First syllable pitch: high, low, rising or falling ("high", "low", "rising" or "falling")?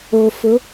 low